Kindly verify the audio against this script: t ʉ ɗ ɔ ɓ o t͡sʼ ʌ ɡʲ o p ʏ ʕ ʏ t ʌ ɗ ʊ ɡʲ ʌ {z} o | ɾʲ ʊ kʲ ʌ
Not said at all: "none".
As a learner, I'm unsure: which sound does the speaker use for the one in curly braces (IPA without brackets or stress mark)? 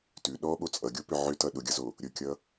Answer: z